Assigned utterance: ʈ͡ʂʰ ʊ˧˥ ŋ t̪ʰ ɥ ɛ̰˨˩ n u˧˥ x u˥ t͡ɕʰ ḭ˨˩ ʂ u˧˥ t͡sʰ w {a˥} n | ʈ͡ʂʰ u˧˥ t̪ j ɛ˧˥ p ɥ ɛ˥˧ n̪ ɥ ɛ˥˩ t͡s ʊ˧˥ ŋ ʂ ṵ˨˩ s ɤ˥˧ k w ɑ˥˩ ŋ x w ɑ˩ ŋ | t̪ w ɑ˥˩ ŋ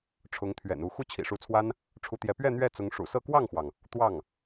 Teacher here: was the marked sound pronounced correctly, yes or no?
yes